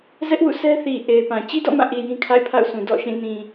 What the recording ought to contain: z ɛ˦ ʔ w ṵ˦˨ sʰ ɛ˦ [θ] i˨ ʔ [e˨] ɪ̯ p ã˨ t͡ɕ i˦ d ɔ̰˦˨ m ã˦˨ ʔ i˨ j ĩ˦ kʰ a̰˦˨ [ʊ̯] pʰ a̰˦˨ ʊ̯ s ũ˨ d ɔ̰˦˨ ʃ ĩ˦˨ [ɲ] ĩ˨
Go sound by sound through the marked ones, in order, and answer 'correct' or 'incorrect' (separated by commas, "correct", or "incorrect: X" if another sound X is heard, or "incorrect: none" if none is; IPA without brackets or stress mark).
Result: correct, correct, incorrect: ɪ̯, incorrect: n